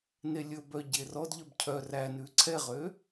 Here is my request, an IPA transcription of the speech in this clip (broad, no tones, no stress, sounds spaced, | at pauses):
n e lʲ ɵ b œ ɟ e r ɔ d ʎ œ b cʰ œ r æ n ʉ ǀʰ ɛ ʁ ø